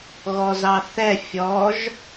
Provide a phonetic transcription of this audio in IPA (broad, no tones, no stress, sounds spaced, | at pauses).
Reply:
ɣ ɔ z ɑ θ ɛ fʲ ɔ ʒ